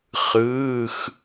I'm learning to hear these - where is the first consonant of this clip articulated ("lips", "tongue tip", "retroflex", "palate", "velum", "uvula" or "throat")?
uvula